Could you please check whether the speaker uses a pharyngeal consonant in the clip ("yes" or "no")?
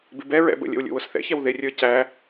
no